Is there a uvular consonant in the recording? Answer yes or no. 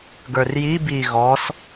no